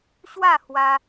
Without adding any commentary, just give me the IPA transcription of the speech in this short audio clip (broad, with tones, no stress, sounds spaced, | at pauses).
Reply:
ɕ w a˥˧ h w a˧